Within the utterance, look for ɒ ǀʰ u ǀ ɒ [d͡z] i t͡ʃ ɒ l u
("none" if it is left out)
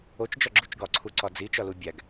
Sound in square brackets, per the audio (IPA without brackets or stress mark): d͡z